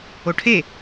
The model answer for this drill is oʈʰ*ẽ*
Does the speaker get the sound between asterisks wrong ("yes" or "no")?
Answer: yes